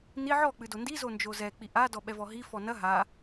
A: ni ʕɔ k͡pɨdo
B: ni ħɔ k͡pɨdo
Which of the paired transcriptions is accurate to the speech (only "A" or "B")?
A